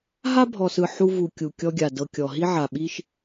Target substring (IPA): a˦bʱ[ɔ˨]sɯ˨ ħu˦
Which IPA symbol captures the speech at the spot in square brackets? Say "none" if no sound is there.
ɔ˨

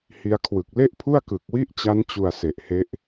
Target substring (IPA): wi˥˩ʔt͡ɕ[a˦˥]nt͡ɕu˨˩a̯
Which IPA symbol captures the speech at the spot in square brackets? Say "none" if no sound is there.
a˦˥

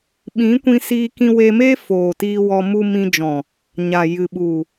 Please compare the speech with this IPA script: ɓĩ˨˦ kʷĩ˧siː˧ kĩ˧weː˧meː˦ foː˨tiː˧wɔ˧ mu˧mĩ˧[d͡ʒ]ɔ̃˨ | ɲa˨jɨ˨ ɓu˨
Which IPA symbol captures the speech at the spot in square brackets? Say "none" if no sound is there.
d͡ʒ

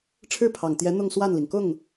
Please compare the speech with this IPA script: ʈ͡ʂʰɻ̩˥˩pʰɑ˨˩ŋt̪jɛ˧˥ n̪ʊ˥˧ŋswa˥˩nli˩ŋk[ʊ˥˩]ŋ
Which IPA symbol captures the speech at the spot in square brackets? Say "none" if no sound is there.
ʊ˥˩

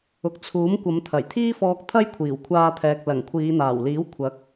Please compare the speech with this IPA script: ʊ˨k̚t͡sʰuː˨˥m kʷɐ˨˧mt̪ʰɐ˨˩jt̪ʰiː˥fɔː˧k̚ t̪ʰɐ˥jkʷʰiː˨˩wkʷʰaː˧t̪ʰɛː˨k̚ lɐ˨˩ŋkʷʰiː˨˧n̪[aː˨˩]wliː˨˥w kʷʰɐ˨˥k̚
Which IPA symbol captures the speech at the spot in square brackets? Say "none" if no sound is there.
aː˨˩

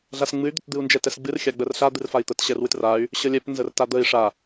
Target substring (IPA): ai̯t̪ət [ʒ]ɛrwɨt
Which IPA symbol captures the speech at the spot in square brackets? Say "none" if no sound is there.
ɕ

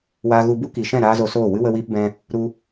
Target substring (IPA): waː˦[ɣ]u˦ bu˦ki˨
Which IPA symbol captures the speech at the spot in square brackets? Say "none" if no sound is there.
ɣ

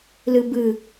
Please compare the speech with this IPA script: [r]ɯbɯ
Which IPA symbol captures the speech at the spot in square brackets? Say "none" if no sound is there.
l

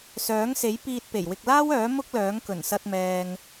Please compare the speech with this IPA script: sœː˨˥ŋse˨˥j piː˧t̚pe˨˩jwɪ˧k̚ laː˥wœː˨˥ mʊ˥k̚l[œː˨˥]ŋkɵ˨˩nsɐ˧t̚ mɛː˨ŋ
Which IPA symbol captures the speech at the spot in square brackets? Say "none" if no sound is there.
œː˨˥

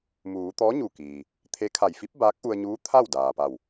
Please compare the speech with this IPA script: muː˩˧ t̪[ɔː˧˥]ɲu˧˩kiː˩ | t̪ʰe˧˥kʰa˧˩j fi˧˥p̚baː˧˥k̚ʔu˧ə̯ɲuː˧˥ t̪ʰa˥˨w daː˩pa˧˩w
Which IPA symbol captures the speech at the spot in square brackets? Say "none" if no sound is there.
ɔː˧˥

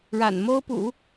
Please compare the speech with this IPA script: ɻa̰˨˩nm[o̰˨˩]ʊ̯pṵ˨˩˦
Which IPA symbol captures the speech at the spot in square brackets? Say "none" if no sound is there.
o˥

